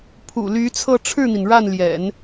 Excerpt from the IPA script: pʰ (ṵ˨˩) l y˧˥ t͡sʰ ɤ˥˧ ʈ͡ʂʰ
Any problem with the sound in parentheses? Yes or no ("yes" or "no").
no